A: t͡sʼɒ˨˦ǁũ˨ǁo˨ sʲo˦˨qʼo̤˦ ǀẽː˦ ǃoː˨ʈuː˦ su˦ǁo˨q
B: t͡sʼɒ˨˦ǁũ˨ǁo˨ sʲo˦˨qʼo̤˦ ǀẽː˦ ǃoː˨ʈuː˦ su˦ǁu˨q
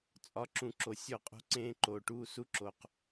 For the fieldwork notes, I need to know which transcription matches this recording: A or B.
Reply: A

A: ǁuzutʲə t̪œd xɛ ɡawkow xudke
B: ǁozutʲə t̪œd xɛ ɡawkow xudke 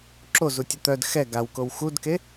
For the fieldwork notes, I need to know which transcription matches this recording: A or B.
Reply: B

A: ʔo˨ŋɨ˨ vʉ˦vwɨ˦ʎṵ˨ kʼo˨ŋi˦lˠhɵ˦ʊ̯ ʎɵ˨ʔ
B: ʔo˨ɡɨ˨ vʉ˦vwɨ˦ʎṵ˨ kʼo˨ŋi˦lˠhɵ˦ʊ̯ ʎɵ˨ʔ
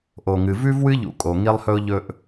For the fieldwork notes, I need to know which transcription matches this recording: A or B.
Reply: A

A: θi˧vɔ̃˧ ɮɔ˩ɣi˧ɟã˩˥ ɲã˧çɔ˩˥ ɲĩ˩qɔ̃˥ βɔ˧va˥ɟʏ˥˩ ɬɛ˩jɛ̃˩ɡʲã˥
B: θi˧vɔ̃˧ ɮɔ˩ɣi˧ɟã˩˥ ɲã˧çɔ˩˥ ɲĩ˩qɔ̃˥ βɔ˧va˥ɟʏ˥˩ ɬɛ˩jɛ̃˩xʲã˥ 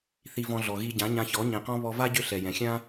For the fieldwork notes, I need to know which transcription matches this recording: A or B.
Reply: B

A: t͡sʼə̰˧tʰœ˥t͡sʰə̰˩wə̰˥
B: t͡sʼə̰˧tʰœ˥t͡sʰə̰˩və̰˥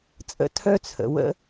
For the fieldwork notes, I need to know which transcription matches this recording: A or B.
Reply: A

